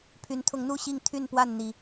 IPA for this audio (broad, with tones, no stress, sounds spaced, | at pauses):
pʰ y˨˦ n t̪ʰ ʊ˨˦ ŋ n̪ u˥˨ ɕ i˥˨ ŋ t̪ʰ y˥˨ n p w a˥˨ n n̪ i˨˩